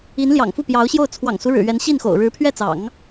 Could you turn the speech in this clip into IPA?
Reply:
i˧˥n ljɑ̰˨˩ŋfu˥˩pjɑ˧˥ʊ̯ɕjo˥˩ʊ̯ t͡sʰwɑ̰˨˩ŋsu˦ɻɻ̩˨˩ ɥɛ˧˥nɕi˥˩nxo̰˨˩ʊ̯ ɻɻ̩˧˥pʰɥɛ˥˩t͡sɑ̰˨˩˦ŋ

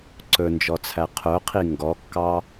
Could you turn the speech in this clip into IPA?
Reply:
ǀɵnd͡ʒɔt͡sʰæ qʰœqʰi ŋɡɔkːɑ

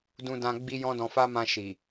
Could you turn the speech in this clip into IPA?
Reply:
dũ˧dã˧ ɡ͡bi˦jɔ̃˦dɔ̃˧fa˦ mã˧ʃi˨

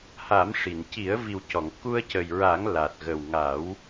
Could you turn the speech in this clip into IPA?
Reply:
ha˨˩˦mʂi˨˩˨n ci˨˩˦ə̯vi˨˩wcɔ˨˩˨ŋ ku˧ə̯cə˨˩jɹa˨˩˦ŋ la˨˩t̚ɣə˨˩w ŋa˨˩˦w

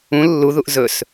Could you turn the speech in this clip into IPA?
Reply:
ũ lːuðuʔ zɵs

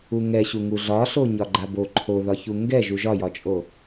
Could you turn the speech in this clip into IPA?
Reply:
uŋɛɕu ŋuɮɒɬo ɲɒɡ͡ǃabo ǃʰoðɒçu ŋɡɛʒu ʒɒjɒt͡ʃʼo

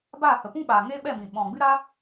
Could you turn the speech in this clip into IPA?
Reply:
baː˦˨hə˨pũ˦ɓaː˨ ŋe˦ɓɛ˦˨mĩ˨ ɓɔ̃˨ɡ͡bɨ˦ ɾa˦

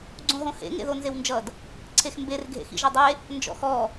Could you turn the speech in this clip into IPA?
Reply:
ɡ͡ǀõɦõhḛ ŋḛðonzewnd͡ʒʌd | ǀʰexmber ɡʱḛxḭʒɐdˤe | nd͡ʒɔ̰xɔ

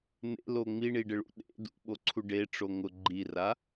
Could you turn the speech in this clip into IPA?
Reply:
n̪ḛlo ŋ͡miɳiɖɪɭṵ ɗḛ dṵɓoǀʰu ɖeʈ͡ʂo ŋʊ ɡ͡ǃira

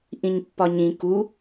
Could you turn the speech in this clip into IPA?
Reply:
ʔĩɲpːɒɲĩ ku

